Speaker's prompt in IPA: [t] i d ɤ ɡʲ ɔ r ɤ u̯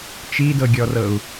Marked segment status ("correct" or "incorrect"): incorrect